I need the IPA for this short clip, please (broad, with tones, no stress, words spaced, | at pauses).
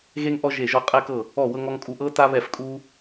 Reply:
ɣe˦ŋʔɔ˦ ʒe˦˨ʒɔ˦ qʼɛ˦kɤ˦˨ | ɔ˦˨ wɤ˦ŋɔ˦ŋkʼu˦ ʔɤ˦ta˦βɛ˦˨f kʼu˦